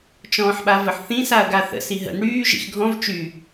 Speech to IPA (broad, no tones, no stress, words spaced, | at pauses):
t͡ʃɔ̃ːħɓavəħθĩ saɐ̯ɡaθə̰ siɦə̰n ɽyː ʒḭxɡʱɔ̃v t͡ʃy